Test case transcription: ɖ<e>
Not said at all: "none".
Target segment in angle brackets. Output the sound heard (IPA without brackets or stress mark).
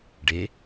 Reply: e